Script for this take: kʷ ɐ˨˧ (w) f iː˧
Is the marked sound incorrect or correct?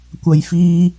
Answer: incorrect